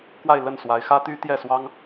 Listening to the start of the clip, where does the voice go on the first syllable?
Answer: falling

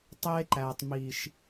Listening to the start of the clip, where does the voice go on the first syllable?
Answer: high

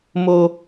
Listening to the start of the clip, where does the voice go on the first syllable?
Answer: high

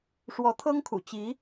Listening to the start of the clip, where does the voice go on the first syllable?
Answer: rising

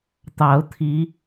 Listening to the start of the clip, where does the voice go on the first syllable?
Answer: rising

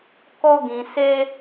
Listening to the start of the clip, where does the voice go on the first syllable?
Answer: high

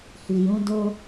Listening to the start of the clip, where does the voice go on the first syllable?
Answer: low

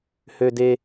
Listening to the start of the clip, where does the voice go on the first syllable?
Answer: high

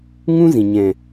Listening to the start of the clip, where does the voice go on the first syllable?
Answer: high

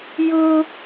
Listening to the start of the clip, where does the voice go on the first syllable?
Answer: high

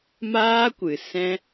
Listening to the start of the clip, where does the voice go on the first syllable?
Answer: high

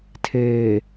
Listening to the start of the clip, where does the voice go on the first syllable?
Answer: low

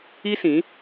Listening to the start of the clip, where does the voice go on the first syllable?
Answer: high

